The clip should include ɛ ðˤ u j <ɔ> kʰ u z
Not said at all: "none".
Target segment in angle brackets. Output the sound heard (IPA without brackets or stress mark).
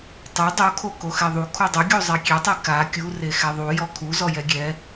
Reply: ɔ